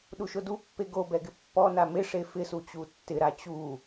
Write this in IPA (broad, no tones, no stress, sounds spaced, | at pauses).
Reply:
ɗ u ʃ ʊ d u pː e ɡ o b ɛ ɡ ɪ pː ɔ n a m ɪ ʂ e f ɪ s u t͡ɕ u tː ɪ ɾ a t͡ɕ u